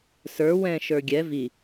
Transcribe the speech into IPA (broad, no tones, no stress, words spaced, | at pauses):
sə˞ wɛ̃ ʃə˞ɡʲɛ vi